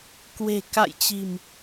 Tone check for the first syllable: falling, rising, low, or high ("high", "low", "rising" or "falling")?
low